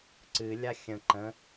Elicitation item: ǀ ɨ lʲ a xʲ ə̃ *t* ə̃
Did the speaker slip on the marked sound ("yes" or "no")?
yes